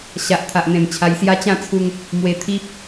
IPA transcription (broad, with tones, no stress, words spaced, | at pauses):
ɕa˨ʔt̪ʰa˨ʔn̪ẽ˨˩m t͡ɕʰa˧jsja˦ t͡ɕã˥˧t͡sʰu˧ŋ | mwe˧t̪ʰi˦p̚